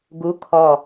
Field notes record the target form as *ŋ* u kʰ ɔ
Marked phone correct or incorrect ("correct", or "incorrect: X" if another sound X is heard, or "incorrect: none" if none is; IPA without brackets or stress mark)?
incorrect: ɡ